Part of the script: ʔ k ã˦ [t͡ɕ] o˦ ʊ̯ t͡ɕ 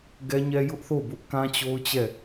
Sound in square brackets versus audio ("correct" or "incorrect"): correct